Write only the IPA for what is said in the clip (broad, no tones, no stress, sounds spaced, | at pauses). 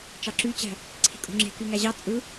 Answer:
t͡ʃ ɑ ǁ y t͡ɕ æ̤ | ǀʰ i̤ kʼ o̤ ŋ͡ǁ e̤ k y ŋ æ ʑ ɑ t͡sʼ ɯ